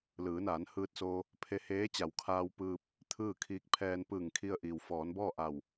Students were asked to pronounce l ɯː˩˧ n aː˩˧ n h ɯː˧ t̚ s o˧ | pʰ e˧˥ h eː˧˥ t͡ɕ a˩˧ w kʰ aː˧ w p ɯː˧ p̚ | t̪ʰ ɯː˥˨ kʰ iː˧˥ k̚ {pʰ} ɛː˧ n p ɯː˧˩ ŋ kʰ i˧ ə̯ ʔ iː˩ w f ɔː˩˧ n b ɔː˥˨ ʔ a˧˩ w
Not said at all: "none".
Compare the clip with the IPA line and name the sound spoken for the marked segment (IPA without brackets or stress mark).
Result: pʰ